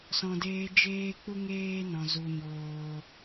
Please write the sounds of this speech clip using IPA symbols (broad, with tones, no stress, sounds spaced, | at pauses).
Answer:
s ɔ̃˨ d eː˧ d͡ʒ eː˦ k͡p u˦ ŋ eː˦ n ɔ̃˨ z u˨ ɲ oː˧